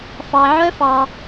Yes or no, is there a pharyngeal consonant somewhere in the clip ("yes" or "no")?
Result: yes